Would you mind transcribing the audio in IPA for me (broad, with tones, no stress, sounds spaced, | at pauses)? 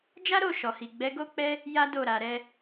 d͡ʒ a˦ ɾ o˦˨ ʃ ɔ˨ h i˨ ɡ͡b ɛ˨˦ ɡ o˦ k͡p ɛ˦ | j a˦ d o˦˨ ɾ a˨ ɾ ɛ˧